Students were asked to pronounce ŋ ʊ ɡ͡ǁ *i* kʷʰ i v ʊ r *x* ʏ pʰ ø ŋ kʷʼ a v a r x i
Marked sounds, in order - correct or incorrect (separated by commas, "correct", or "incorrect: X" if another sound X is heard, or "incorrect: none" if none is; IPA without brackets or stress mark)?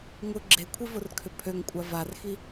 incorrect: e, incorrect: kʰ